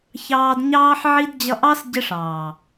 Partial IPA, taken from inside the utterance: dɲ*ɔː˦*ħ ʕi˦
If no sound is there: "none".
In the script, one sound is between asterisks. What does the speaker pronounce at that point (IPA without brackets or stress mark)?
ɑː˦